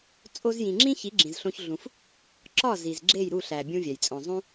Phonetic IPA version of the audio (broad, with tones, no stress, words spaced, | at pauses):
t͡sʼo˧zjĩ˨ŋ͡ǁĩ˦ çi˨˦ɡ͡ǁĩ˨zɬõ˧ç ɮũ˧f | ǁɒ˦˨ zi˨zɡ͡ǁe˦˨j ɾu˦˨ɬæ˨ bʲũ˦vʲæ˨jt͡sʼõ˧ zˤũ˦